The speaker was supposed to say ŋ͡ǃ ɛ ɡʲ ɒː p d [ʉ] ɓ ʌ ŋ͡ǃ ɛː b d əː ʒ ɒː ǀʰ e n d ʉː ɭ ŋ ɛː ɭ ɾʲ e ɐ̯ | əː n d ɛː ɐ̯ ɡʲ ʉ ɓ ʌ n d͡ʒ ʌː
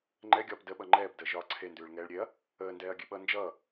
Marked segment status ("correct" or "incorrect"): incorrect